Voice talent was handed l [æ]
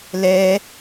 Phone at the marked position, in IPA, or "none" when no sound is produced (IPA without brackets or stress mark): ɛ